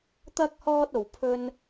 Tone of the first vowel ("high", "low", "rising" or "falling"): high